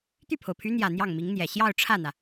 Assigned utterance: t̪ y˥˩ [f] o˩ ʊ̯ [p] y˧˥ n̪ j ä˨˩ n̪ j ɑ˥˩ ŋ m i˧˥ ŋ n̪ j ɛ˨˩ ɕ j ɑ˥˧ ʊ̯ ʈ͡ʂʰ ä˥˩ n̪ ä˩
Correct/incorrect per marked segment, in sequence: incorrect, incorrect

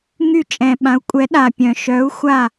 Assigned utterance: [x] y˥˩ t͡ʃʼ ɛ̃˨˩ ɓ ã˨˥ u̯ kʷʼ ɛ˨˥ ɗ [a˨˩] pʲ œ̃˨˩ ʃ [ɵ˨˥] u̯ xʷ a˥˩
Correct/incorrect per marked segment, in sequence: incorrect, correct, incorrect

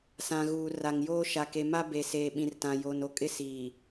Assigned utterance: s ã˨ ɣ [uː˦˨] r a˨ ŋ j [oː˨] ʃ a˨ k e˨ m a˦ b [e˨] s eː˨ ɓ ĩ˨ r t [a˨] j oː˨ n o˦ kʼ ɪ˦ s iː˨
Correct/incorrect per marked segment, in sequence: incorrect, incorrect, correct, incorrect

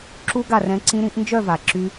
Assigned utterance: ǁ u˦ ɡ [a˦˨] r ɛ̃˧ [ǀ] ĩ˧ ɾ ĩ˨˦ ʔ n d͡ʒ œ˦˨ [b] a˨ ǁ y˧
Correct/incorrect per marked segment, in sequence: correct, correct, incorrect

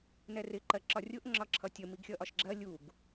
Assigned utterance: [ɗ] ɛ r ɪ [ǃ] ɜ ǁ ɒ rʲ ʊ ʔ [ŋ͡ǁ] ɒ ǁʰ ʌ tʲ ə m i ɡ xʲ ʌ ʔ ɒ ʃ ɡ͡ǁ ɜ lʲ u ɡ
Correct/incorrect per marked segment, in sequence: incorrect, correct, correct

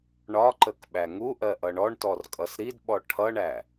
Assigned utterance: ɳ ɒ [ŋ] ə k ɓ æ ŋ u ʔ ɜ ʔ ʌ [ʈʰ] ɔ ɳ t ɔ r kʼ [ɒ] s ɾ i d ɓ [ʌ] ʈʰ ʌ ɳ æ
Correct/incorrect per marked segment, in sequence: incorrect, incorrect, incorrect, incorrect

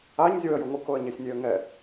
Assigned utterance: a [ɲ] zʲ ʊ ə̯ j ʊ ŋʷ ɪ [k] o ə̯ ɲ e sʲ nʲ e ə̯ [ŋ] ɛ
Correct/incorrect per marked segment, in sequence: correct, correct, correct

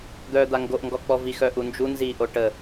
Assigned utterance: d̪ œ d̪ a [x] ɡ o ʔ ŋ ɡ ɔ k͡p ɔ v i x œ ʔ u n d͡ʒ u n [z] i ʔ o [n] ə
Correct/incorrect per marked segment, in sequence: incorrect, correct, incorrect

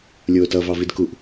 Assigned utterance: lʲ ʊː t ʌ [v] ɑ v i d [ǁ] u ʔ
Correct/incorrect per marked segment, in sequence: correct, incorrect

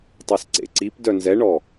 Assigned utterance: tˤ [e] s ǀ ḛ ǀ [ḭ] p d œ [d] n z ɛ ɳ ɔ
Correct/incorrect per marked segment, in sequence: incorrect, incorrect, incorrect

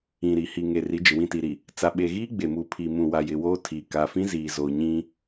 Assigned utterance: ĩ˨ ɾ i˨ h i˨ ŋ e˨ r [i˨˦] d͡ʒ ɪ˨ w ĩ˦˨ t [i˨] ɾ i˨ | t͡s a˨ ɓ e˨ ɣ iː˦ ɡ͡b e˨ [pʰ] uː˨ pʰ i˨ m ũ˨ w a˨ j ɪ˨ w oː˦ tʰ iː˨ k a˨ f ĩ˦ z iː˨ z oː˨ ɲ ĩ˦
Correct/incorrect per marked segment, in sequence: correct, correct, incorrect

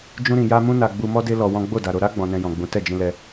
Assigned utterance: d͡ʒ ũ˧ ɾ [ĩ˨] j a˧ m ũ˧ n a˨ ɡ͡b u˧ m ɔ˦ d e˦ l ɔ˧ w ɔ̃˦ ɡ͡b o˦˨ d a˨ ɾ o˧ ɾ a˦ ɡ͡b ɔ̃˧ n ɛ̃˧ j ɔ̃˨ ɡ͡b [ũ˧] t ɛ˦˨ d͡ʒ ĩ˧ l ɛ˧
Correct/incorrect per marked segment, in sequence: correct, incorrect

